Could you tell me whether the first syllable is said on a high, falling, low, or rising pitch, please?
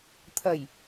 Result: low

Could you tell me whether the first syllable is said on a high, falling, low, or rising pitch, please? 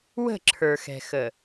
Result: falling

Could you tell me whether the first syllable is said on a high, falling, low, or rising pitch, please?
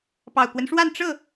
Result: low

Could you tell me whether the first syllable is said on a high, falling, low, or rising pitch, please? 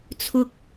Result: low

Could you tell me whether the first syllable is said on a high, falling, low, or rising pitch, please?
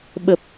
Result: low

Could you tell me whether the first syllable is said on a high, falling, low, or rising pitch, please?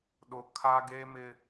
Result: high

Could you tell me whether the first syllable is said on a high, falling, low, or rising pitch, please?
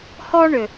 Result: high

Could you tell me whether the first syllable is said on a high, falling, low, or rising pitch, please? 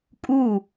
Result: falling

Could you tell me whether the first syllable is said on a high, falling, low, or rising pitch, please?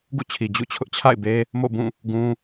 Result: falling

